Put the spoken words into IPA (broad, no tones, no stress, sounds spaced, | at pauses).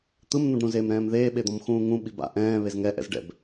t̪ ɯ m n̪ ũ ɖ ɾ ũ z eː m ɾ ɛ̃ː m ð eː ɓ e d̪ ɔ̃ m x ũː ŋ ũ ɓ i b a̰ ʔ ɛ̃ː β e z ŋ ɛ ʔ ɛ̰ z ɖ ɛ̰ b